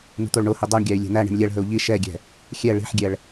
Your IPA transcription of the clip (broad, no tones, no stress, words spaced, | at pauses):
n̪ṳt̪oɭɳohi dˤoɳɡʲæy̯ lʲe̤n̪æɳi̤ɳ lʲɛɭɦɵu̯ ʎi ʃɛɡʲɛ̤ | xʲɛ ɭi̤ħɡʲɛɭ